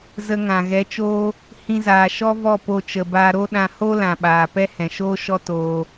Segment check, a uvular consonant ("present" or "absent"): absent